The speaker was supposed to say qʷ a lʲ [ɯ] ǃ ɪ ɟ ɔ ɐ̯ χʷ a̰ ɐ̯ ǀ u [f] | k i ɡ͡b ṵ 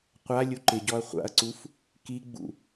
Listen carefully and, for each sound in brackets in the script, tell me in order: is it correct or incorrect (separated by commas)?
incorrect, correct